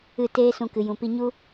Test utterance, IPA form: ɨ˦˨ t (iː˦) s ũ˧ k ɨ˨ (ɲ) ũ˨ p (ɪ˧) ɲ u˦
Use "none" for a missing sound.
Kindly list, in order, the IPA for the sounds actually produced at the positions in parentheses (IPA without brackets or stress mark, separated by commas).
eː˦, j, i˧